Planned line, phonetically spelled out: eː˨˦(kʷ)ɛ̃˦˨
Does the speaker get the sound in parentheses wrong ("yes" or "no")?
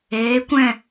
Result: no